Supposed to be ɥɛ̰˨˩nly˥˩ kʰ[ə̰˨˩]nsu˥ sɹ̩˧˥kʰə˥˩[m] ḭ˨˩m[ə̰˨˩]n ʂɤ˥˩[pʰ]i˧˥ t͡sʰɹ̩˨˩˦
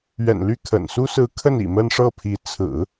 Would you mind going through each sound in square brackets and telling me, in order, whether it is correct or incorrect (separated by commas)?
correct, incorrect, incorrect, correct